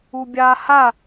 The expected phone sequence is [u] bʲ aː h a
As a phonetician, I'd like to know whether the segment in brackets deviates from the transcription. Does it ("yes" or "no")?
no